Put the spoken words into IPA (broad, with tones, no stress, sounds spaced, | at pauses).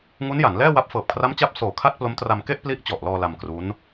ŋ u˦˥ n j a˩˦ n l ɛː˥˩ w a˦˥ p̚ f ɤː˨˩ p̚ kʰ r a˦˥ m t͡ɕ a˦˥ p̚ s oː˨˩ kʰ a˥˩ t̚ p l o˦˥ m t r a˧ m k e˥˩ ʔ p l i˦˥ ʔ t͡ɕ ɔ˨˩ ʔ l ɔː˧ l a˧ m k r u˦˥ n